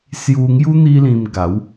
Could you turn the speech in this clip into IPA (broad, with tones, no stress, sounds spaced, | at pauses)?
s j u˧ ŋ j u˦ n̪ i˦ l ĩ˧ m ɡ a˨˦ w